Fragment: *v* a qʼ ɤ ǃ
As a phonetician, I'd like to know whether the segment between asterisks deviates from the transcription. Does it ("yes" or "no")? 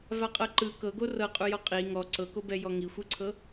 no